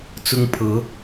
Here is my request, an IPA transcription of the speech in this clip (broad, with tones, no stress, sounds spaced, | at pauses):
t͡s ʊ˥ ŋ pʰ ɤ˧˥